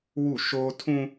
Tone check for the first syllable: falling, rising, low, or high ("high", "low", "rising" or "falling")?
falling